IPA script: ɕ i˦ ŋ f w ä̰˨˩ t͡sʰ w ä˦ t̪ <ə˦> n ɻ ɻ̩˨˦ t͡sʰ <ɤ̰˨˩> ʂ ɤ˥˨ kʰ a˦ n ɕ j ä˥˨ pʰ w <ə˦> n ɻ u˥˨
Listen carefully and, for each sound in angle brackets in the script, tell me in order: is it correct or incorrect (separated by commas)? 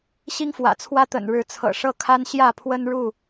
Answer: incorrect, correct, correct